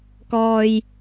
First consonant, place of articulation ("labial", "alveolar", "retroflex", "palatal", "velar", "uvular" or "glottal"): velar